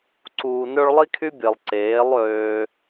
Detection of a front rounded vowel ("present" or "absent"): present